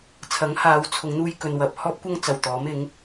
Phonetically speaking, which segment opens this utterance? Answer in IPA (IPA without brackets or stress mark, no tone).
t͡sʰ